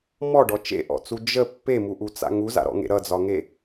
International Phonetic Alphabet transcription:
m ɔ ɖ ɔ t͡ʃ ḛ ʔ ɔ̰ t͡s u d͡ʒ ə pː e m u ʔ u t͡s a̰ ŋ u z a̰ ɾ ɔ̰ ŋ ḛ ɾ ʌ d͡z ɒ ŋ e

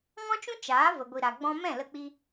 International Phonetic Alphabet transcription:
ŋ ɔ̃˦ t͡ʃ ũ˦ t͡ʃ aː˨˦ v ə˨ ɡʷ i˨ ɾ a˨ ɡ͡b ɔ̃˧ m ɛ̃˦˨ l ə˧ k͡p i˧

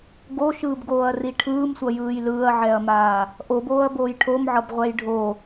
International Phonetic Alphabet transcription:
ɡ o ʃ ɯː b ɡ oː ɐ̯ r i ʈʰ ɯː m sʷ ʌ j ɯː j l ɯː ɐ̯ ʕ ɛ ɐ̯ m aː | ʔ o b oː ɐ̯ b oː j ʈʰ o m ʕ ʌ b ʁʷ ɛ j ɖʱ o

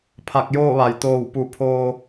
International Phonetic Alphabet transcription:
pʰ a˧˩ k̚ j oː˥˨ ʋ a˩ j t̪ oː˧˩ w p u˧˩ pʰ oː˧

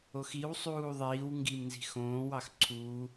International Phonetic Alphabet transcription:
o x i w sˤ uː ðˤ iː w ŋ ɡ i m n z i̤ x õː w ɑ x ǀʰ uː

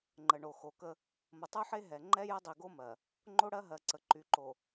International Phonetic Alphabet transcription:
ŋ͡ǃ ə˨ ɳ o˨ x o˨ k ə˦ | m ə˨ tˤ u˦ ħ e˦ ɦ ɛ˨ ŋ͡ǃ ɛ˦ j ə˦ dˤ i˨ ɡ o˦ m ɜ˨ | ŋ͡ǃ o˦ ɽ ɜ˦ ɦ ɜ˨ ǀ ə˨ ǃ y˨ ǃ o˨

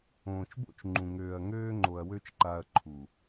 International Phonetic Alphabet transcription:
õː˨ t͡ʃ b o̰˦ t͡ʃ ŋ͡ǃ ũ˨ ŋ øː˨ ɐ̯ ŋ øː˦ ŋ͡ǃ o˨ ɐ̯ w ø˦ t͡ʃ ǃ a˦ ɐ̯ ǃʰ u˨

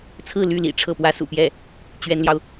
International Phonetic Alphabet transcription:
t͡sʰ ɹ̩˥˧ l y˥˩ l ḭ˨˩ ʈ͡ʂʰ ɤ˥˩ p w ä˥ s ṵ˨˩ p j ɛ˥˩ | t͡ɕ ɥ ɛ˥ n l j ɑ˨ ʊ̯

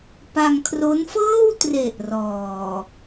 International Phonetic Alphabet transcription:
p a˧ ŋ kʰ r o˦˥ n f ɤː˥˩ w t r e˨˩ ʔ r ɔː˨˩

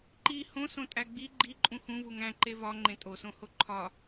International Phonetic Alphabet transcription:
ǃ i h õ s õ tʼ æ ɡ͡b i ɡ͡ǃ i ǃʼ ũ x ũ v u ŋ æ̃ ǃ e v ɒ ŋ͡ǃ ẽ tʼ o s õ h o ǃʰ ɒ

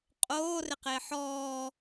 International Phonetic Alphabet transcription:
qʼ oː r ɪ q ɪː ħ ɔː

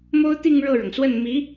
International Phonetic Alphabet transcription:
m o˥ ʊ̯ t̪ i˥˧ ŋ ɻ ɤ˥˩ ɻ ɤ˩ ŋ s w ə˥˩ n m i˧˥

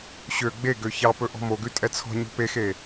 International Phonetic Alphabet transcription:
ɕ ø ɡ͡b e ɡ ø ç ɑ p ɵ ʔ ɔ̤ m o ɡ ʉ tʼ ɛ t͡sʰ ɔ̤ ɲ o̤ p e x e

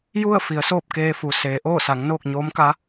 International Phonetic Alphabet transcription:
j u˥˨ ə̯ f i˩˧ ə̯ s oː˥˨ p̚ k eː˧ f u˩ s eː˩˧ ʔ oː˥˨ s a˩˧ ŋ n oː˥˨ k̚ ɲ oː˧˥ m k a˧˥

